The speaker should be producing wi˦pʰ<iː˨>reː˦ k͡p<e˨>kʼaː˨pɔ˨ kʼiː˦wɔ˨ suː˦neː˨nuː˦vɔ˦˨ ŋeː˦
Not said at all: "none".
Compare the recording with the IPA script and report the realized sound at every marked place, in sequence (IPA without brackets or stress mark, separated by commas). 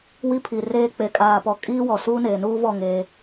i˨, e˨